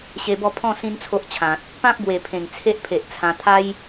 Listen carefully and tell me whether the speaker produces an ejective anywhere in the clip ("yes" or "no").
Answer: no